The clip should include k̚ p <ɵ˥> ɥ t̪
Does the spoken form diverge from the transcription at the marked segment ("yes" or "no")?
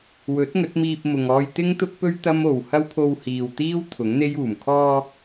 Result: no